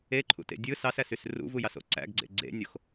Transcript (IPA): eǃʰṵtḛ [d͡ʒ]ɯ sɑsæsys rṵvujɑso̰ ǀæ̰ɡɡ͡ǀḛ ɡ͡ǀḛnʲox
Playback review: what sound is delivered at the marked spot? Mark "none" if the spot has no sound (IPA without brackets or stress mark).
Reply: dʲ